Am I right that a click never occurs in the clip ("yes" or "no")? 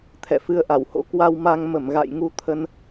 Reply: yes